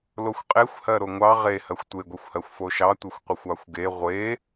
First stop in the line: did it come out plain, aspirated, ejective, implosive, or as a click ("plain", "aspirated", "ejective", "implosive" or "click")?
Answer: ejective